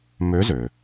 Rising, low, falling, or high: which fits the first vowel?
rising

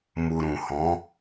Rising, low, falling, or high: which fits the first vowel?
low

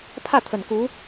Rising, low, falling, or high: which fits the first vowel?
falling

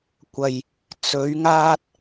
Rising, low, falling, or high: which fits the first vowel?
low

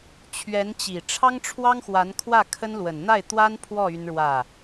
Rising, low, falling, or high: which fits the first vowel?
rising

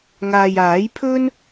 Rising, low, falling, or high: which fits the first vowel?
low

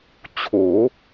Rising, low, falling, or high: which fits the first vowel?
rising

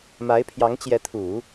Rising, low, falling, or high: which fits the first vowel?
rising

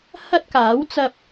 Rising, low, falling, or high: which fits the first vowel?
high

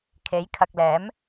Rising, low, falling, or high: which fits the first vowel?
rising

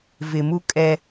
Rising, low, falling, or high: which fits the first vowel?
low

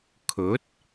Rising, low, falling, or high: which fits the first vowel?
rising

